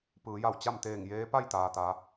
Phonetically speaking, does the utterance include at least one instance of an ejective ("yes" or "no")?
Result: no